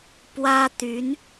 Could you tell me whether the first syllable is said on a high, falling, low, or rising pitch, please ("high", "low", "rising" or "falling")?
high